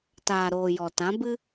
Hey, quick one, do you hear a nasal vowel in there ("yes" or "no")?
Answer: yes